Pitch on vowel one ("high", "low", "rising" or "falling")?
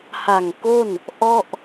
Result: low